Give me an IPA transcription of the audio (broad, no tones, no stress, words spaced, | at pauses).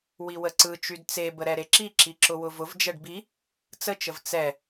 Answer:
wiwəǀɯt͡ʃyd t͡sebə ɾɛɾeǁiǁi ǁʊwʊvʊvd͡ʒɛɖ bi | t͡sət͡ʃəv t͡sɛ